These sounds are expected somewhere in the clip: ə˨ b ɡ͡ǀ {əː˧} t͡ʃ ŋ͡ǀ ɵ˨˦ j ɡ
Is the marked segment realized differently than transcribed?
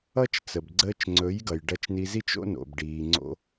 no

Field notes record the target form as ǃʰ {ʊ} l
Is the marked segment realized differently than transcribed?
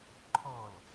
yes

